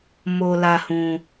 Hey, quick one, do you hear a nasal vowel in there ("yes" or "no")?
yes